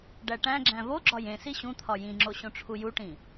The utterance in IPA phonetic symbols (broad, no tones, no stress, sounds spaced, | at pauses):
ɖ æ ʈ æ̃ ɡ͡ǁ æ̃ v o ɡ͡ǁ ɒ j ẽ s i ɕ ũ t̪ʰ ɒ j ĩ ŋ͡ǁ o ɕ õ ʈ͡ʂʰ u j u ʈ ĩ